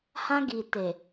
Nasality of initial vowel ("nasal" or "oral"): nasal